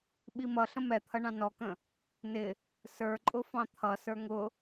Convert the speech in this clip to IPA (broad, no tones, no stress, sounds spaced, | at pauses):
ɓ i m ʌ ɬ ə̃ m ɛ t̪ʰ ʌ ɳ ɑ̃ n ɔ k ə̃ | n ɪ | s ə˞ ǃʼ ʊ f ɑ̃ t̪ʰ ʌ s ə˞ ŋ ʊ